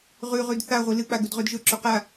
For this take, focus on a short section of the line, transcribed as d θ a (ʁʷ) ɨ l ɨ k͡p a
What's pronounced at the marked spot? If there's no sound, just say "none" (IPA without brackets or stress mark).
ʁʷ